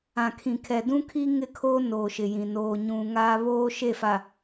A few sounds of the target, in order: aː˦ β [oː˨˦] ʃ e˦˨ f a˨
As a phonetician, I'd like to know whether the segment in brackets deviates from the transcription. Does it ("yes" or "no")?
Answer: yes